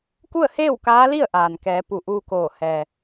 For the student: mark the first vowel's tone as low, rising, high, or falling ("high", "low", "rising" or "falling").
falling